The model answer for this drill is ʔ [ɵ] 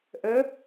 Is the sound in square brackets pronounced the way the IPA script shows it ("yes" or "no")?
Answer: no